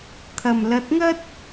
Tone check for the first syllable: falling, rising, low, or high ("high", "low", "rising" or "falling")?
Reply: low